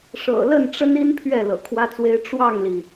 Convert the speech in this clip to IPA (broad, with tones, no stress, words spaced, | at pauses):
ʂɤ̰˨˩lə˥˨nʈ͡ʂə˦ni˦n pʰɥɛ˥˨lɤ̰˨˩kʰwä˦t͡swe˦ɪ̯ ʈ͡ʂwɑ˥˨ŋli˩